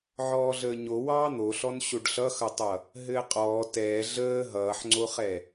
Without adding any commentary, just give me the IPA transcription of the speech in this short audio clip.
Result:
ʕɔːɮəːɲo wɑːn̪oɬɔn ɕoɖɬʌxʌtˤʌ | ɦɘːqʼɔː tɛː ɮəː ɦʌːħŋ͡ǀoχɛ

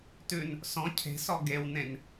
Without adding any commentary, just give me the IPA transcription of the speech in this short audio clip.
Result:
tʉn | sɔ̃ cʰe̤sɔ ɡewnẽn

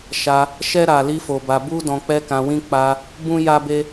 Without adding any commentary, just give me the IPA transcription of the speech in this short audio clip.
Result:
ʃa˧ | ʃɛ˦ ɾa˧ li˦fo˧ba˧ bu˦ dɔ̃˧k͡pɛ˦kã˧wĩ˦ k͡pa˧ | bũ˦ ja˦be˦

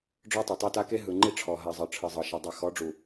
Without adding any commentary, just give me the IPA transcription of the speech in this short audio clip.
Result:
ɖ͡ʐɔ˦tˤɛ˨tˤa˦ta˦ ke˦ ɦɯ˨ŋ͡ǃi˦ʈ͡ʂʰɔ˨ɦa˨ zˤɤ˨ʈ͡ʂʰɯ˨zˤɤ˨ʃe˨ dˤɛ˨xɔ˨˦ɖ͡ʐu˨

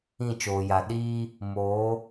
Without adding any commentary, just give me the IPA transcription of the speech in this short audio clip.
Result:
ĩ˦˨t͡ʃoː˨ja˨ ɗiː˦ | moː˨˦

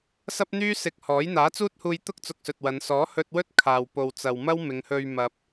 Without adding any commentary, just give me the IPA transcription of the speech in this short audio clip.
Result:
sɐ˥p̚n̪yː˥ sɪ˧k̚hɔː˨˥j n̪aː˨˥t͡suː˥t̚huː˧jt̪ʊ˥k̚ t͡sʊ˧k̚sɵ˨t̚wɐ˨˧n sɔː˨˥hɵ˧t̚wɵ˥t̚ kʰaː˨wpo˨wt͡sɐ˨wmɐ˥w mɪ˨˧ŋhɵ˧ɥ mɐ˨p̚

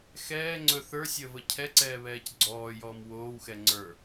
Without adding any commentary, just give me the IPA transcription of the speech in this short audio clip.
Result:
xɛː ŋ͡ǀɵ θə˞ sʲəːvəcʰɛǀɛː βɛːcɡ͡ǀɔːjɔːm woːwxɛ ŋ͡ǀə˞

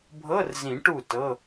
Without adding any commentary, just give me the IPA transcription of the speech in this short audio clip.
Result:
bʱɤ˧˥˧rzĩ˨˩˦ ʈu˥˨tɤ˧˥˧

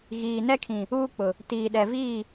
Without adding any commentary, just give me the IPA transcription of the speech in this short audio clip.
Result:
ɣiː˨nɛ˦kʰĩ˨ | uː˦k͡pʊ˨ | tiː˨ɗɛ˨viː˦˨

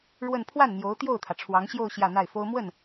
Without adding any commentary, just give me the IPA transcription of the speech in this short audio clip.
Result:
ɻwə˥˧n pʰwa˥˩nn̪jo˧˥ʊ̯ t̪jo˥˩ʊ̯t̪ʰä˩ ʈ͡ʂʰwɑ˧˥ŋɕjo˥˧ʊ̯ ɕjä˥˧n̪a˥˩ɪ̯fo˥ʊ̯ mwə˥˩n

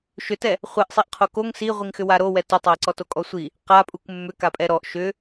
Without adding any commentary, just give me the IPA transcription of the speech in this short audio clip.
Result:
ʃʏtɛ | χʷɛʔ sˤiʔqʰokoŋ siʁʷiŋxʏ waɾowɛ tʏtˤae̯ǀɔ tokʼɔsʷi | qapʼuk mːʏ kapʼɛɾɔʔ ʃʏ

